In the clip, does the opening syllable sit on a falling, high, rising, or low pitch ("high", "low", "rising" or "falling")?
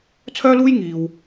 high